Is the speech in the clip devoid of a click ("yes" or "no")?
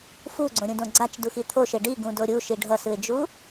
no